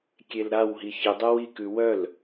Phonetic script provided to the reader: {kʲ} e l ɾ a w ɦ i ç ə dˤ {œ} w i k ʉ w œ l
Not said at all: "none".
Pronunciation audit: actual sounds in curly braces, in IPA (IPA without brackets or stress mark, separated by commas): kʲ, œ